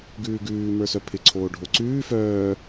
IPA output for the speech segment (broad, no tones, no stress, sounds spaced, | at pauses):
ɡ ʉː ɡ ʉː m ə˞ s œ pʰ ɪ ǀʰ oː ɖʱ o ǀ ʉː f œː